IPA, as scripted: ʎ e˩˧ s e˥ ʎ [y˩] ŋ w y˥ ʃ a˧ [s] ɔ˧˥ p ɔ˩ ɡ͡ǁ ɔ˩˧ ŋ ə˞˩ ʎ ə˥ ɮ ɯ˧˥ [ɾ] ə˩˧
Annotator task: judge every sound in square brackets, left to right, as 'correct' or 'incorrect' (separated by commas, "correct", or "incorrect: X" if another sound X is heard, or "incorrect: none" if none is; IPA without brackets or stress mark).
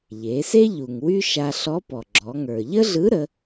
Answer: incorrect: u˩, incorrect: ɬ, correct